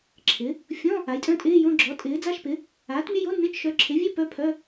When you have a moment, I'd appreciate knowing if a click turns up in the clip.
yes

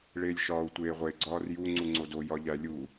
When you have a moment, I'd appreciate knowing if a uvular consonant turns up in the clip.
yes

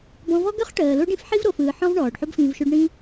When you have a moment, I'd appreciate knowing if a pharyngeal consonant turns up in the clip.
yes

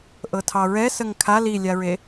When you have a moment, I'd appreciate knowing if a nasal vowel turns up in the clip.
no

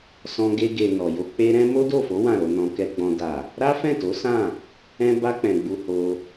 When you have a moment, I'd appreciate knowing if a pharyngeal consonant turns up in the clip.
no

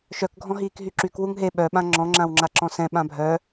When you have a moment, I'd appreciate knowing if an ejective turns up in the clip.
no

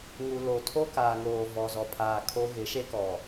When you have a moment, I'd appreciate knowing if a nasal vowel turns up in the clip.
no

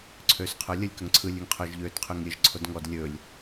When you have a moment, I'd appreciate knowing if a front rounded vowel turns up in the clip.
yes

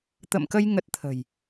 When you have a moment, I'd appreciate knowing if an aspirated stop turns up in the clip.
yes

